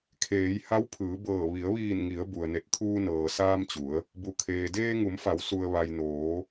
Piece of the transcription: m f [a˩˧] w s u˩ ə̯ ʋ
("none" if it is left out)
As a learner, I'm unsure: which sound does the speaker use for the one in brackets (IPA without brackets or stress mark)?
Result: a˩˧